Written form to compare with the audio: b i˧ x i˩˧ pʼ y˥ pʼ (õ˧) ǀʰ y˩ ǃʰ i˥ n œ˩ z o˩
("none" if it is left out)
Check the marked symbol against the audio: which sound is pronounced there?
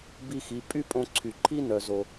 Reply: õ˧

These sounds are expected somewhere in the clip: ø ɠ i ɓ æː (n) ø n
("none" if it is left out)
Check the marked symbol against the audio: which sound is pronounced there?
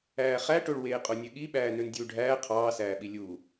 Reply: n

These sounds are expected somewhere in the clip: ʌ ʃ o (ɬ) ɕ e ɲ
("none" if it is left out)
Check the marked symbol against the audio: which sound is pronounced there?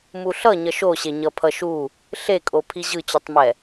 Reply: none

